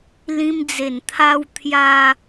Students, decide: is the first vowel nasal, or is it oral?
nasal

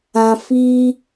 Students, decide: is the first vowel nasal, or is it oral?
nasal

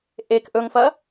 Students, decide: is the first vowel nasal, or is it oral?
oral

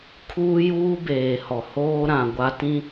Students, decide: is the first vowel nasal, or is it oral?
oral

